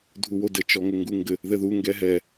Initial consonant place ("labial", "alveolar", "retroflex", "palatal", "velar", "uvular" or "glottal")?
alveolar